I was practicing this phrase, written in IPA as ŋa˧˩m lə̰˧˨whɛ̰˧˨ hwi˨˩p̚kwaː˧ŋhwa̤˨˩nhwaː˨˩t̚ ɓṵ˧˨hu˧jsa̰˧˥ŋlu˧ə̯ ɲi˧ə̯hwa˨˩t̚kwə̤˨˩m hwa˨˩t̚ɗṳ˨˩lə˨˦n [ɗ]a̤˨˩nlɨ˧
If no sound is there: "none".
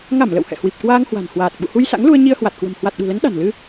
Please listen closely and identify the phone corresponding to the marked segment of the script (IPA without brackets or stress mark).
ɗ